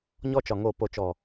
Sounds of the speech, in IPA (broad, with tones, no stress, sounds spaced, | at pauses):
ɲ ɔ˦ t͡ʃ ɒ˨ ŋ o˨ p o˨ t͡ʃ ɔ˨